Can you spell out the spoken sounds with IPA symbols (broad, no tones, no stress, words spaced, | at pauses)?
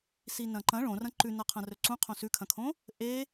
sinɐ̃ǃɐ̃ ɭõrɐ̃ ǃʉnɐqʰɐ̃rɵ ǀũ qʰõsʉkʰɐ̃kʰõ | ʔe